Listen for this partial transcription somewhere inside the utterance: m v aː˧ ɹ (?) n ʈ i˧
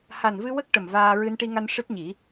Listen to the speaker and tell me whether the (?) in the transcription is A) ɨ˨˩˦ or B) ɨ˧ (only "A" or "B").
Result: B